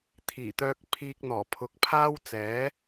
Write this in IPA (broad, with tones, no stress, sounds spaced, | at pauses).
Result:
t̪ʰ iː˨˩ t̪ œː˧ k̚ pʰ iː˧ k̚ n̪ ɔː˨˩ pʰ ʊ˨˥ k̚ pʰ aː˥ w t͡s ɛː˨˥